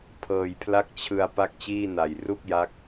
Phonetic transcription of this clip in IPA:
pʰ ɤː˨˩ j pʰ l a˥˩ k̚ t͡ɕʰ ɯ˧ a̯ p a˥˩ k̚ t͡ɕ iː˥˩ n a˨˩ j r u˥˩ k̚ j a˦˥ k̚

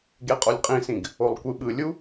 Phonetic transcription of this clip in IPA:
ɡ e qʼ o lʲ qʼ ĩ s ĩ ɡ | o lˠ kʷ ɯ ɓ ɯ lʲ u

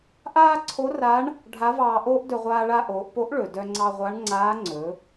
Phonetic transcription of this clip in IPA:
ʔ aː˥ ǀʰ o˧˥ r a˧˥ ɳ | ɖʱ a˧˥ v ɑː˧ ʔ oː˥ ʔ d ɵ˧ ʁʷ aː˧ ɭ a˧ ʔ oː˩˧ ʔ p o˧˥ ʔ ɭ ɵ˩ d œ˧ ŋ͡ǀ ɑ˧ ʁʷ a˧˥ ɳ ŋ͡ǀ aː˧˥ ŋ͡ǀ ɵ˩˧

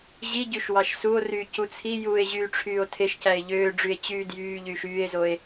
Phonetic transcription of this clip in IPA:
ʑ i ɟ y ʃ w ɑ ʃ s u o̯ r yː c u t͡sʰ i j uː e̯ ʑ yː ʈ͡ʂʰ yː o̯ tʰ e ʃ c æ e̯ ʎ øː ɖ͡ʐ y e̯ t͡ɕ yː d j yː ʎ yː ʃ yː e̯ z o e̯

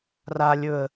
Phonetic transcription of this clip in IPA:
r a lʲ ɵ ə̯

